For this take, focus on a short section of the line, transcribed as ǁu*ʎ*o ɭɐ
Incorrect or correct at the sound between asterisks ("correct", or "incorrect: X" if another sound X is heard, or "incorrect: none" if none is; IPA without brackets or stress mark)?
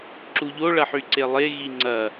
correct